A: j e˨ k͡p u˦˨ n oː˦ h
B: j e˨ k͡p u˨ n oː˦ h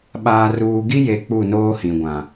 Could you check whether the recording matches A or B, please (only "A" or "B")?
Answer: A